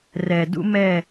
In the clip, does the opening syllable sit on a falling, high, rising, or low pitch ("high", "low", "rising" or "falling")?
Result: low